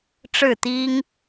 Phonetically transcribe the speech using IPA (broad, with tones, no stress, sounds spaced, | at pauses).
ʈ͡ʂ ɻ̩˥˨ t̪ i˦ ŋ